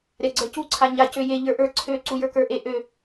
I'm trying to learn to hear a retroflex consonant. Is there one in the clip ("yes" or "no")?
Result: no